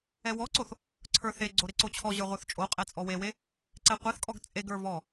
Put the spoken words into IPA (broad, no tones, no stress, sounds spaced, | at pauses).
ɛ w ɔ ǀ o θ | ǀʰ ə˞ θ e ɡ͡ǀ o ɾ e ǀ o t͡ɕʰ ɔ ʑ ə˞ ʁʷ ə˞ θ t͡ʃʼ o qʼ ɛ t͡sʼ ɔ w e w e | ǀ ɛ qʷ e θ kʼ ɔ ɡ t͡sʼ e ɡ ə˞ v ɔ